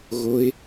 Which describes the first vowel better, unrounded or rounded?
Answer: rounded